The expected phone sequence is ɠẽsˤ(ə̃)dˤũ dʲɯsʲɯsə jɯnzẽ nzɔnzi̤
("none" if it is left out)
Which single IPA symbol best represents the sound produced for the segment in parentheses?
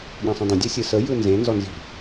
ə̃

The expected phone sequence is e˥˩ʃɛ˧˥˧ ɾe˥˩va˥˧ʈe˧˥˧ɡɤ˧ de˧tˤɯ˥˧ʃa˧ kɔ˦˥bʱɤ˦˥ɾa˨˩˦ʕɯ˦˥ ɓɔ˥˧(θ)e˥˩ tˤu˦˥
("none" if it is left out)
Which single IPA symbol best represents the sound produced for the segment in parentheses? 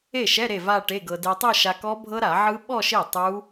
ʃ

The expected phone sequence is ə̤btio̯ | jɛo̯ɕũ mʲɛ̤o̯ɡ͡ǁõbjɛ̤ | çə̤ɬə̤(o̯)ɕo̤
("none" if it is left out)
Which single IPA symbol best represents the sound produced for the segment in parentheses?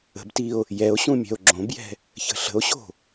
o̯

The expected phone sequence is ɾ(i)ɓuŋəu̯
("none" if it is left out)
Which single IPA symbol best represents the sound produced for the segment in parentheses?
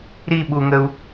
i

